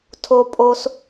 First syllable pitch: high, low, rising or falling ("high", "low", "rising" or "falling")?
low